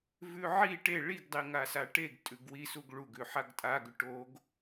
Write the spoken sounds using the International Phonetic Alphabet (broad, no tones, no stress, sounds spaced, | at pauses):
v ʉ ʕ i ʈ e ɭ i ɡ dˤ i ŋ a s a ʈ e ɡ tʼ ʉ ɡ w i s u ɡ ɭ u ɡ ʉ ħ a ɡ tʼ a ɡ ʉ ʈ o ɡ